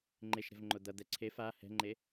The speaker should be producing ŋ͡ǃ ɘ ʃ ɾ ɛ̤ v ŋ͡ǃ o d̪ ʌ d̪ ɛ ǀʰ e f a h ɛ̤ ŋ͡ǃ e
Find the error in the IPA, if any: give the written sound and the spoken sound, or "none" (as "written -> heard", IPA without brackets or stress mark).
ɘ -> e